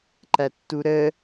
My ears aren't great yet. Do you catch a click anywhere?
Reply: yes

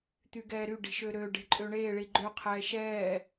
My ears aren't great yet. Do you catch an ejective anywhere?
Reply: yes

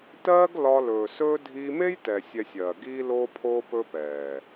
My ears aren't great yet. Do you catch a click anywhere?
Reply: no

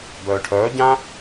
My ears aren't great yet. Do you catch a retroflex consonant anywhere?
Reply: yes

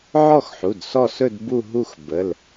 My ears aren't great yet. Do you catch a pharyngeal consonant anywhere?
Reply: yes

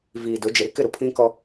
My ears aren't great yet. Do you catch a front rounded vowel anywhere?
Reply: no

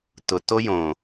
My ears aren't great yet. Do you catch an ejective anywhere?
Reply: no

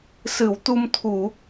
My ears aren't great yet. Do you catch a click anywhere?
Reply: no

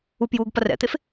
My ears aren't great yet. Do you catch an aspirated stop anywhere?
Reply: no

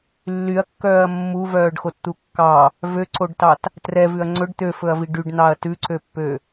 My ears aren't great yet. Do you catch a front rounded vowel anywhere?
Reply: yes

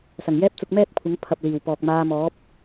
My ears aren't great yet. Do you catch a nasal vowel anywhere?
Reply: no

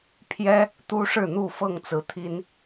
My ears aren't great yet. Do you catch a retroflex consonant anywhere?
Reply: yes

